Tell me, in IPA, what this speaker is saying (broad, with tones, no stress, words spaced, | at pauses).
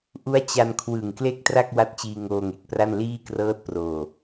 ʔu˦˥a̯t͡ɕa˧nkʰwɯ˨˩ŋ kle˥˩k̚tra˥˩k̚ wa˦˥t̚t͡ɕiː˧ ŋoː˧ŋe˨˩k̚pra˥˩n liː˥˩krɤː˦˥t̚proː˨˩